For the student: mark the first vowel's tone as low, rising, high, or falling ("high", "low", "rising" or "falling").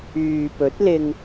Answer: low